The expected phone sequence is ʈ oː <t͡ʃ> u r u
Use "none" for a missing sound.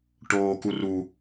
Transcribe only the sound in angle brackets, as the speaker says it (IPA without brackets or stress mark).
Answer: k